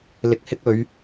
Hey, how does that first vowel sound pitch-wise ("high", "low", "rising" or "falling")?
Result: low